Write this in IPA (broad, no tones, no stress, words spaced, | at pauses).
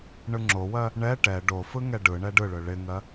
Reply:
ɳɯŋ͡ǁowɜ | ɳɛ ʈɛ ɖo fɯŋɛɖɯɳɛ ɖɯɭɯ ɭɪŋɜ